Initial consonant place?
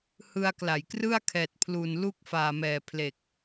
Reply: glottal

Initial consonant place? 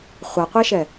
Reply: uvular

